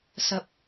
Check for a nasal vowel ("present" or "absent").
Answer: absent